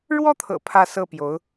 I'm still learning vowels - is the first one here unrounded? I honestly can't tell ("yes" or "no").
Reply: no